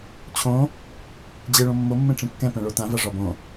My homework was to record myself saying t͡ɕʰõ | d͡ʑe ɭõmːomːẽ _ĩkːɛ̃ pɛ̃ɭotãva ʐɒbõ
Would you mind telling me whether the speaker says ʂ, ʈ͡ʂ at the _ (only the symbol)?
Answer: ʈ͡ʂ